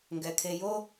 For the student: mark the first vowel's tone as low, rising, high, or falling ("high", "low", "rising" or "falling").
low